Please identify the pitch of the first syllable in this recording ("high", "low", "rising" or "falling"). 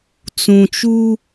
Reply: low